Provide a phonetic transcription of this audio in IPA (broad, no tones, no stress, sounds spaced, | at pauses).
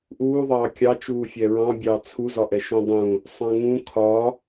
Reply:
ʔ uː ðˤ ɑː kʲ ɑ t͡ʃ uː fʲ ɛ ɹ ɑ̃ bʲ ɑː t͡sʰ u z ɒ ʔ ɛ ʃ ũ dˤ ũ | sˤ ɑ̃ ŋ ũ kʰ ɒ